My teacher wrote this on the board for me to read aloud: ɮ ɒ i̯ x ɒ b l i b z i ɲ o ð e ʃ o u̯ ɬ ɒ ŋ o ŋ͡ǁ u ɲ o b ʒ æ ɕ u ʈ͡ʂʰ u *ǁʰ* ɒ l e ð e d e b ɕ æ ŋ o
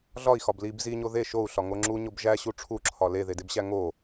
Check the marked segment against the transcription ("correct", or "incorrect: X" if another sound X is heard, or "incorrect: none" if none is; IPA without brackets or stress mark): correct